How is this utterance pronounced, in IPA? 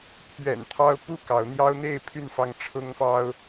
pʰ ɥ ɛ̰˨˩ n t̪ʰ ɑ˦ ʊ̯ p u˥˨ k ɑ˨˦ ʊ̯ n̪ j ɑ˦ ʊ̯ n̪ e˥˨ ɪ̯ pʰ y˥˨ n f ɑ˥˨ ŋ ʈ͡ʂʰ ʊ˦ ŋ f ɑ˦ ʊ̯

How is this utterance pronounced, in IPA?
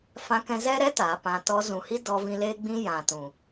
f ã˧ k ɛ̃˧ z ɛ˦ ɾ ɛ˦ t a˨˦ p ã˧ t ɔ˧ z ũ˨ h i˦ d ɔ˧ v ĩ˧ l eː˦ ɡ͡b ĩ˦ j ã˨ t ũ˨

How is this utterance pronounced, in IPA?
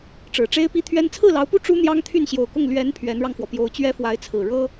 ʈ͡ʂ ɻ̩˨˩ ʈ͡ʂ e˥ ɪ̯ p i˥ t̪ʰ ɥ ɛ˥ n t͡sʰ ɹ̩˥˩ l ɑ˧˥ ʊ̯ p u˥˩ ʈ͡ʂ u˥ n̪ j ɑ˥ ŋ t̪ʰ y˥˩ n ɕ j o˨˩ ʊ̯ k ʊ˥˩ ŋ l ɥ ɛ˧˥ n pʰ ɥ ɛ˧˥ n ɻ ɑ˧ ŋ f w ɔ˩ p j o˧˥ ʊ̯ t͡ɕ ɥ ɛ˥ f w a˧˥ ɪ̯ t͡sʰ ɹ̩˨˩ ɻ ɤ˥

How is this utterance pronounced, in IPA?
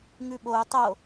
ŋ ʉ ɓ o u̯ tˤ o

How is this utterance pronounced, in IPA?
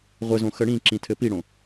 ʁʷ ɘ z õ x ə ɽ ĩ ǁ ĩ tʰ ɘ p i ɽ õ

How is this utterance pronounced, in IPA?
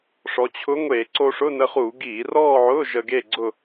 ʂ ɔ˩˧ t͡ɕʰ ʊ˧˥ ŋʷ e˧˩˧ ǀ o˧ ʂ ʊ˧˥˧ n ə˧ χ u˧˩˧ ɡ iː˧˩˧ r ɔː˥˧ ʕ ʊː˧˥˧ ʒ ə˧ ɡ e˥˧ ɡ͡ǀ ʊ˥˧

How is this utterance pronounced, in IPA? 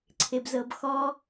ǀʰ e b z ɤ b x ɔ

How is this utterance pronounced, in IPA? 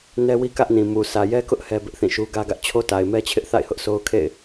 n ɛ˦ w i˦ k ä˦ ʔ n ĩ˨ m u˨ s ä˨ j ɛ˦ k ʊ˦ ʔ h ɛ˦ b ɪ˦ ʔ θ ĩ˦˨ ʃ u˦ ɡ ä˦ ɡ ä˦ ʔ t͡ɕʰ o˦ t a˨ ɪ̯ m ɛ˦ t͡ɕʰ ɪ˦ ʔ θ a̰˦˨ ɪ̯ h ʊ˦ ʔ s o˦ ʊ̯ kʰ ḛ˦˨ ɪ̯

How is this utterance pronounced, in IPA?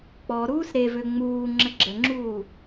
k͡p ɔ ɾ uː s ɾ e v ø ŋ͡m uː ŋ͡ǁ ə ɡ͡ǁ ə ŋ͡ǁ uː

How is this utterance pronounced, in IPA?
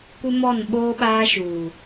kʷ ɪ˦ m ɔ˦˨ n ɓ oː˦ ɓ aː˦ ʃ uː˨

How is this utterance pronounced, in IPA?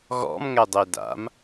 ɣ ɔ̰ m ŋ ɛ dˤ e d a̰ m

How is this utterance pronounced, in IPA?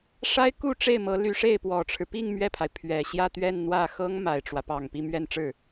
ʂ a˥ ɪ̯ k u˥˧ ʈ͡ʂ e˥˩ ɪ̯ m ɤ˧˥ l y˧˥ ʂ e˥˩ ɪ̯ p w ɔ˨˩ ʈ͡ʂʰ ɻ̩˦ p i˥˧ ŋ m ɥ ɛ˥˩ pʰ a˩ ɪ̯ pʰ ɥ ɛ˨˩ ɕ j ä˥˧ t̪ ɥ ɛ˥˧ n n̪ w ä˥˩ x ɤ˥ ŋ m a˨˩ ɪ̯ ʈ͡ʂ w ä˦ p ɑ˨˩ ŋ p i˥˧ m ɥ ɛ˥˧ n ʈ͡ʂ ɻ̩˥˩

